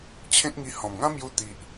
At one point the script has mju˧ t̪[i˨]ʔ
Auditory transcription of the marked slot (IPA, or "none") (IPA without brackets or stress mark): i˨